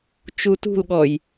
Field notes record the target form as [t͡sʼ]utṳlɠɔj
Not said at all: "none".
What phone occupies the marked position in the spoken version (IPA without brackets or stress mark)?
t͡ʃ